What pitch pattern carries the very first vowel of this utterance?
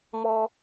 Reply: high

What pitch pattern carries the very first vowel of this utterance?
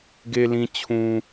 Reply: low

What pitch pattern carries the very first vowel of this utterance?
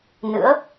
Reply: rising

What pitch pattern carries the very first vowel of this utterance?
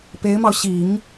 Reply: rising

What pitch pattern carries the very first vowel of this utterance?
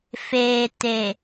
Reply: low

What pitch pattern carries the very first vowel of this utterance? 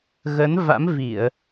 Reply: rising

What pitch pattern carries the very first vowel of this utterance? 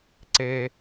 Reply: high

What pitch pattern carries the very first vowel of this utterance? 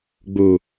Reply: low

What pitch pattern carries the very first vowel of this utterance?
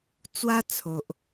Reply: high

